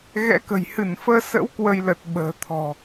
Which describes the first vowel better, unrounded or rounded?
unrounded